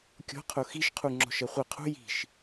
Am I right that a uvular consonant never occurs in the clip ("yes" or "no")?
no